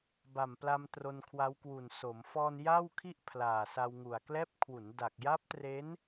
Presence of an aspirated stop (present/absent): present